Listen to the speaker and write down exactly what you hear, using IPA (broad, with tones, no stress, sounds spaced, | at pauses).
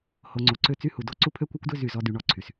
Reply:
h o˨ ŋ͡ǀ o˨ ǀ ø˦ t͡s y˦ h u˨ d o˦ ǀ u˦ pʰ ø˦ kʷ œ˦ kʷ d ø˦ z y˦˨ z ɔ˦ d y˨ ɳ ɔ˦˨ ǀʰ y˨ s